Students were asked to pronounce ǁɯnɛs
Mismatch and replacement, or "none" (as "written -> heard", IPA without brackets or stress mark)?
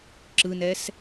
none